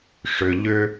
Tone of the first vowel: low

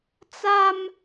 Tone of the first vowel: high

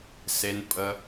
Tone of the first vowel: low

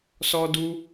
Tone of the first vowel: high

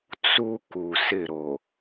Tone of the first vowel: high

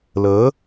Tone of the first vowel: rising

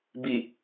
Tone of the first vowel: low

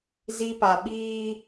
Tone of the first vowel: high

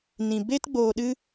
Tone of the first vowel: low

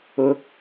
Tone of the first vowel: rising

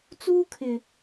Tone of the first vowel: high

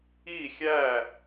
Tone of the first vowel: falling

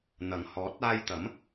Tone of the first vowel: low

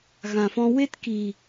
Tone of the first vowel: low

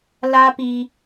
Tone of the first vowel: high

